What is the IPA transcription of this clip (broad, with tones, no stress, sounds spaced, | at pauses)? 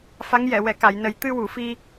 f a˧˥ ŋ j ɛ˨˩˨ w ɛ˨˩˨ k a˨˩˨ j n ə˨˩ j t̪ ɨ˧ w u˨˩˨ f i˧